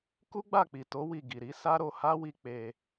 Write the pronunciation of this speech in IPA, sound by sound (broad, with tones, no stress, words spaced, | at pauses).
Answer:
ku˦ɡ͡ba˦˨k͡pi˨to˨˦ wi˦˨ ɡi˨ɾi˨˦sa˦ɾo˧ ha˦wi˧ k͡pe˧